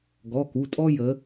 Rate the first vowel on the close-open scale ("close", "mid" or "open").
mid